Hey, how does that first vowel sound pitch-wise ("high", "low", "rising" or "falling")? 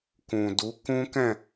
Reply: low